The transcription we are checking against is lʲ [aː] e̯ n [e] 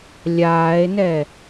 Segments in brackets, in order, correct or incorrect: correct, incorrect

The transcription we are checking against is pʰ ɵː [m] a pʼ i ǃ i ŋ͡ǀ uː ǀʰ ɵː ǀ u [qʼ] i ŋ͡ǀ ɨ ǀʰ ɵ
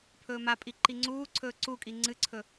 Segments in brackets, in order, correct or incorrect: correct, incorrect

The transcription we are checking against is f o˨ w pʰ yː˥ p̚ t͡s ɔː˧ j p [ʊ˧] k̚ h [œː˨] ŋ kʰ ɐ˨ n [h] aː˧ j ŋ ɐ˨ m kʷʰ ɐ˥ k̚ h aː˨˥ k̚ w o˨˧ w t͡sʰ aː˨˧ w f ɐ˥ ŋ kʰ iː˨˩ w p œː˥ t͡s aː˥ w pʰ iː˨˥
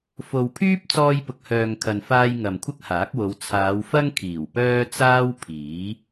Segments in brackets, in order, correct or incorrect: incorrect, correct, incorrect

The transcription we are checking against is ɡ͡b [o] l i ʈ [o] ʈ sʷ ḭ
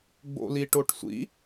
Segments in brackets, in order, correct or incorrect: incorrect, correct

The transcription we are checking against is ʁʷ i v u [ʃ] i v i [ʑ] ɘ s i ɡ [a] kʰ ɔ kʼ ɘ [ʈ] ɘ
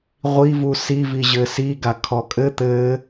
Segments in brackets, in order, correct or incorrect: incorrect, correct, correct, incorrect

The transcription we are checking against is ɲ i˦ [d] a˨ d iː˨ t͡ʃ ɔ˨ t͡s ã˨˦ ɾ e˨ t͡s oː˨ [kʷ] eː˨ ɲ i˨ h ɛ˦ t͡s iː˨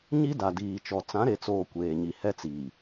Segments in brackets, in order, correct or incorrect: correct, correct

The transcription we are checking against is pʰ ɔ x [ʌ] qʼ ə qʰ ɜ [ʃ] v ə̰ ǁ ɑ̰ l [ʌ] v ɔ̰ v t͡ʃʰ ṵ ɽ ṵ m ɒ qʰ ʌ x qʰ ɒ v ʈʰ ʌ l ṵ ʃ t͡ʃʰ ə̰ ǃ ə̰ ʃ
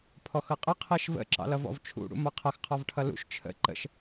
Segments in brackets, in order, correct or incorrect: correct, correct, correct

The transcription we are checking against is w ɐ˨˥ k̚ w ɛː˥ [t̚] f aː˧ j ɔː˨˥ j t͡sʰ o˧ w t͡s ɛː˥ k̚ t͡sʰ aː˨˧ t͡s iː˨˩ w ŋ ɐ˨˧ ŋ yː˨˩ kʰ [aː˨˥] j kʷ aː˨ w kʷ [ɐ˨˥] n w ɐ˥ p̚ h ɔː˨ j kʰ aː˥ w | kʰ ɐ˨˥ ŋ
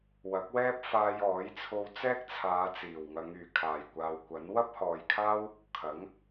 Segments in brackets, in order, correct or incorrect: incorrect, incorrect, correct

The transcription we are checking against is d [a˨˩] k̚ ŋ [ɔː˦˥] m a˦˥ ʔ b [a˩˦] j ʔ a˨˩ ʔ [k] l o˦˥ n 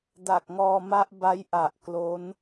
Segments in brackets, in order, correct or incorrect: correct, incorrect, incorrect, correct

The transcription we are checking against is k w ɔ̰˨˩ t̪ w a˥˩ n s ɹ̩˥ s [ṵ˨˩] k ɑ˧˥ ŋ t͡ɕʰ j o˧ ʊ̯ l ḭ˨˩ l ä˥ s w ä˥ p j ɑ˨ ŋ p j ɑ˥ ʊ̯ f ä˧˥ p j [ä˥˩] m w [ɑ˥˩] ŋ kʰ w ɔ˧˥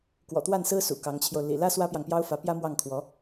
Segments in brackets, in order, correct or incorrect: correct, incorrect, correct

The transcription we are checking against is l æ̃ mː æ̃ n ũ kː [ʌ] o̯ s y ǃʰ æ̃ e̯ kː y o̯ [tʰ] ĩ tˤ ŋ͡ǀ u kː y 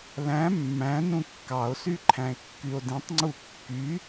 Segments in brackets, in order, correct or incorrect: incorrect, incorrect

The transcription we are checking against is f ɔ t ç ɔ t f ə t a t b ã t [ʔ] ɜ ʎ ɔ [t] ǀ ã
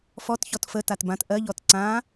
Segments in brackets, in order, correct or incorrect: correct, correct

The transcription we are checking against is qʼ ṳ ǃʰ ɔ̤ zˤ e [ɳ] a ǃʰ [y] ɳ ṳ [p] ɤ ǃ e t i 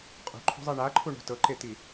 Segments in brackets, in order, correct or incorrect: correct, incorrect, incorrect

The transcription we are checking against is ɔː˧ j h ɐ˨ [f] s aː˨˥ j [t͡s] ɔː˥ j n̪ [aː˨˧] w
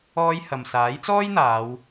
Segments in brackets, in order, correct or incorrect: incorrect, correct, correct

